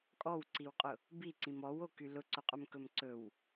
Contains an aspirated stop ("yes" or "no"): no